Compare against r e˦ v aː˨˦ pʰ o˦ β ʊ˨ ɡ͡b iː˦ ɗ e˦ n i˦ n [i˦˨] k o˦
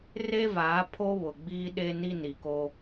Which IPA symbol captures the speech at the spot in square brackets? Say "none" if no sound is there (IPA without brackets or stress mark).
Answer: i˨